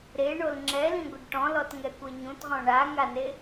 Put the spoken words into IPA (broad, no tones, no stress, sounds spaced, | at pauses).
ɾ e ɳ o l ŋ͡ǁ ɛ l ĩ ɡʷ ɨ ɖ ʈ ɔ̃ l ɔ t ŋ ɛ kʷ e ɲ ũ t ʁ ɔ̃ ɳ a ŋ a n e